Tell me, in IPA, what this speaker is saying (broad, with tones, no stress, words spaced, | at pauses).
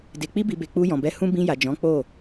de˨k͡pi˧bi˨be˨ k͡pu˧jɔ̃˨bɛ˧ hũ˦ bĩ˧ja˨ d͡ʒɔ̃˨˦k͡po˦˨